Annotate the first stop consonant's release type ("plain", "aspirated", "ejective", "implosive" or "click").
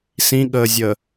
implosive